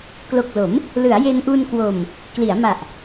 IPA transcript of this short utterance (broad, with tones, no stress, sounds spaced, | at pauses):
k l o˨˩ k̚ l o˩˦ m | l ɯ˩˦ a̯ j e˧ n ʔ u˧ n k w o˨˩ m | k l i˩˦ a̯ m a˨˩ ʔ